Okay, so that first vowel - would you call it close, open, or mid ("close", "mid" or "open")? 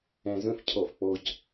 open